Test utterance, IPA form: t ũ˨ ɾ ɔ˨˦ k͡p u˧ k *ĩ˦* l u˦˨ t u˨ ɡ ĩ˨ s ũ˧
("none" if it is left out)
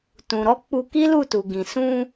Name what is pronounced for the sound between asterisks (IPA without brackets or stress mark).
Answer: i˦